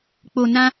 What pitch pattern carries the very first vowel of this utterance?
low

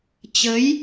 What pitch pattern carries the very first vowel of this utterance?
rising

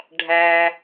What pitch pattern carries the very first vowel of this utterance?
low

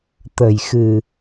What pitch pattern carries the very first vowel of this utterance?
low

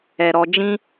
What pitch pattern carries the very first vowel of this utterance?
low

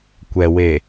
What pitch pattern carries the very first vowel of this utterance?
low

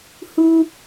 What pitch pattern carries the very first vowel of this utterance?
high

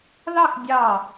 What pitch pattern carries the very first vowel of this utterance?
falling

